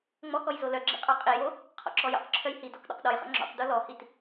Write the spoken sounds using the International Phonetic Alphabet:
ŋ͡m ɔ k ɔ j z o l œ ɡ͡ǁ ḭ qʼ ɔ qʼ i j o | qʰ ɔ̰ ǁ ɔ j ɔ̰ q ǁʰ œ j h i d ɔ k ɗ ɔ̰ q ɗ ɔ j χ ɔ̰ ŋ͡ǁ ɔ̰ q d o l ɔ h i t

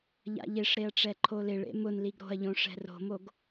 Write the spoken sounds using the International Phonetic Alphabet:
ʎ a̰ ʎ e ʂ ɾ e ɐ̯ ʈ͡ʂ ɛ ǃʰ o l ɪ ɭ ḛ m ʊ n l i ɡ ɾ o̤ ɐ̯ ʎ õ ʂ ɛ̤ r o̤ m o ɡ

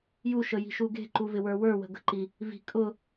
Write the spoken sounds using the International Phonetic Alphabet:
j u ʃ ə j i̤ ʃ u ɡ e̤ ǃ u v ɪ w ə˞ w ə˞ w ə̤ ɡ ə̤ ǃ i | v i̤ kʼ ʊ

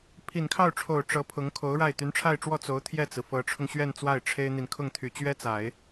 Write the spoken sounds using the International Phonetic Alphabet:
pʰ i˨˩ n kʰ ɑ˥˩ ʊ̯ ʈ͡ʂʰ o˨˩ ʊ̯ ʈ͡ʂ ɤ˧˥ pʰ ʊ˧˥ ŋ kʰ o˧˥ ʊ̯ ɻ a˥˩ ɪ̯ t̪ y˧˥ n ʈ͡ʂʰ a˥˧ ɪ̯ ʈ͡ʂ w ɔ˥˩ t͡s o˧˥ ʊ̯ t̪ʰ j ɛ˥˩ t͡s ɹ̩˩ f ɤ˧˥ ʈ͡ʂʰ ʊ˧ ŋ ɕ ɥ ɛ˥˧ n t͡s w a˥˩ ɪ̯ ʈ͡ʂʰ e˥ ɪ̯ n̪ i˨ n kʰ ʊ˥˩ ŋ t̪ʰ y˨˩ t͡ɕ ɥ ɛ˥ t͡s a˨˩˦ ɪ̯

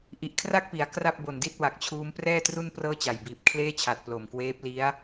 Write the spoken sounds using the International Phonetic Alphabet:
ʔ i˨˩ ʔ kʰ r a˥˩ k̚ p i˩˦ a̯ k r a˥˩ p̚ b o˨˩ n d i˥˩ t̚ w a˨˩ k̚ t͡ɕʰ uː˦˥ m p r ɛː˥˩ t r u˥˩ n p r ɤː˥˩ t͡ɕ a˨˩ j b iː˨˩ p̚ kʰ l eː˥˩ t͡ɕʰ a˨˩ t̚ p l o˨˩ m k w eː˦˥ p̚ l i˦˥ a̯

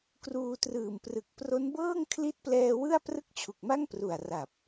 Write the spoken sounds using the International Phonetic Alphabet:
k r uː˧ t r ɯː˨˩ m p r ɯ˨˩ k̚ p r o˦˥ n b ɤː˥˩ ŋ kʰ l i˦˥ t̚ p l ɛː˧ w ɯ˥˩ a̯ p r ɯ˥˩ k̚ t͡ɕʰ u˨˩ k̚ m a˥˩ ŋ p r u˨˩ a̯ r a˨˩ p̚

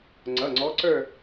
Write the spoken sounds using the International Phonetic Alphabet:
ŋ͡ǀ ʌ˩˧˩ ŋ͡ǀ ɔ˨˦ ǀ ə˞˦˨

